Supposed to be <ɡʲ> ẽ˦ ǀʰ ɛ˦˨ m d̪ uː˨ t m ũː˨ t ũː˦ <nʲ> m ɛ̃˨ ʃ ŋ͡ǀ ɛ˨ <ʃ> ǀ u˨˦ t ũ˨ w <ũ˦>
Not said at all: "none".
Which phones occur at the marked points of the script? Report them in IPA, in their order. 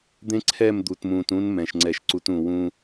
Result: d̪, n, ʃ, ũ˦

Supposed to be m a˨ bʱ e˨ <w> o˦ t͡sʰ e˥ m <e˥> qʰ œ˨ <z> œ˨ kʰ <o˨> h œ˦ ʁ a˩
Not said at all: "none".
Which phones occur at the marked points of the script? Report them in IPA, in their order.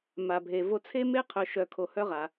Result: v, e˥, ʃ, o˨

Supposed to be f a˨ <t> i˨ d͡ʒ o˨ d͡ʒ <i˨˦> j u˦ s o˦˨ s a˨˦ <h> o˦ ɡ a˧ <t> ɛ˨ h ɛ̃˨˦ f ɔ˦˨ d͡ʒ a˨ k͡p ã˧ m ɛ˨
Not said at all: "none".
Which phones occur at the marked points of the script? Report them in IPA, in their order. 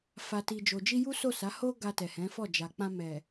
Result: t, i˧, h, t

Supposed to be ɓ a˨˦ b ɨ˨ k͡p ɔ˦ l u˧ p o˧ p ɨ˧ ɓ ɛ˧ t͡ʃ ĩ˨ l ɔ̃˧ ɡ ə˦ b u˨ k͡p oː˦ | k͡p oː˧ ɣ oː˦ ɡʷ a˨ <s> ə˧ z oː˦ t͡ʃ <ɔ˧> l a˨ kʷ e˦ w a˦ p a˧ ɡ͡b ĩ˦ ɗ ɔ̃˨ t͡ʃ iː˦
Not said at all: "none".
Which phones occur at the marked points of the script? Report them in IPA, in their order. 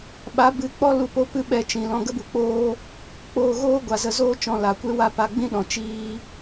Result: z, ɔ̃˧

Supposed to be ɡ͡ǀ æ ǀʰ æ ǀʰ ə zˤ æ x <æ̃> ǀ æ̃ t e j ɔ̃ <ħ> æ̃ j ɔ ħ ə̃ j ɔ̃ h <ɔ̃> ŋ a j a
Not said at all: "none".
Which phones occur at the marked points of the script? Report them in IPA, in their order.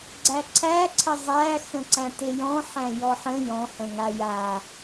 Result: ə̃, ħ, ə̃

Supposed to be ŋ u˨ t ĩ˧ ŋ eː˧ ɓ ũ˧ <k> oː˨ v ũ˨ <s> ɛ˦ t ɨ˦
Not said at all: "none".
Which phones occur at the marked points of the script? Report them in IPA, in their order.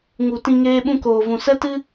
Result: k, s

